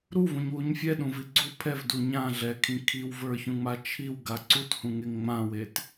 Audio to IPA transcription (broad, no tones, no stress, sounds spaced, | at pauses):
ɾ u v ũ ɲ w u ɲ fʲ ɛ ɗ ũ v i ɡ͡ǀ u pʰ ɛ v d u ɲ ã ɮ ɛ kʰ ĩ kʰ i w v ə˞ ç ũ ŋ͡m a t͡ʃʰ i w ɡ a ǀ u t h ũ ŋ e ŋ ŋ͡m ã w e t